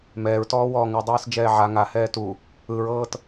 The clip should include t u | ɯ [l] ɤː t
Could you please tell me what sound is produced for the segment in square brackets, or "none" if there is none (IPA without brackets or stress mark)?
ɹ